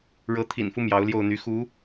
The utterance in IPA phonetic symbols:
ɻɤ˧˥ t̪ʰḭ˨˩nfu˦ mjɑ˧˥ʊ̯ljo˥˩ʊ̯n̪y˧˥ xu˧˥

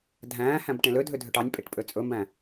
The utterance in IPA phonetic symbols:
dʱæ̃ːhæ̃b ʈẽlødʱø dʱøʈɑnʲpʼeʈ pʼøt͡sʼɵmbæ̃

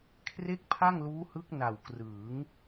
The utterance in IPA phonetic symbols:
kʰre˥˩k̚pʰa˥˩ŋluː˦˥hɯ˦˥k̚ na˨˩wkrɯː˩˦ŋ

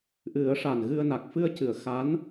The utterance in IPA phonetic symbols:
ʔɨ˨˩˦ə̯ ʂa˨˩nɣɨ˧ə̯na˨˩k̚ fɨ˧ə̯cɨ˨˩˨ə̯ xa˧˥n

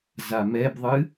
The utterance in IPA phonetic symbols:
zamɛbðˤɨ

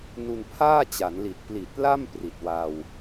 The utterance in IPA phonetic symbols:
nu˧npʰaː˥˩t͡ɕa˩˦nli˨˩t̚ pli˨˩t̚la˥˩m pri˨˩t̚wa˧w

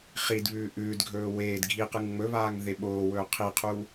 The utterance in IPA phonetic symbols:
χidβʉː ʔʉːdɡʱɵː weːd ɡʱiqɨŋ ŋ͡mɵβaːŋ ðeɓoːwɵː qʰiqʰu

